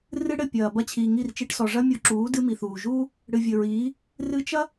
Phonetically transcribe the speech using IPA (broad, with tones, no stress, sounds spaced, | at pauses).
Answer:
r ɨ˦ ɽ ɘ˦˨ pʲ ɐː˨ b ɐ˦ t͡ɕʰ iː˨ ŋ i˦˨ r t͡ʃ i˧ ʈ s ɔ˨ ʐ ɐ˦ mʲ o˧ ǁ uː˨˦ d ɨ˦ m i˨ θ uː˨ ʒ uː˦ | ɽ ɨ˨ vʲ ɘ˨ ɹ iː˨˦ | r ɨ˧ t͡ʃ ɐ˦